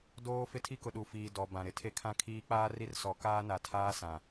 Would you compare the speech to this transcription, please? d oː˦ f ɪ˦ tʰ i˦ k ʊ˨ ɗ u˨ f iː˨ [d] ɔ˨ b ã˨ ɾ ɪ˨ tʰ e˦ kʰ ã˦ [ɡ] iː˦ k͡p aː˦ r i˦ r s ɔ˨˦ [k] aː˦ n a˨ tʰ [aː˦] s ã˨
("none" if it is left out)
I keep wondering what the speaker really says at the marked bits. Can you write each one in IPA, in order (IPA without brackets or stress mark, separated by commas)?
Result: d, kʰ, k, aː˦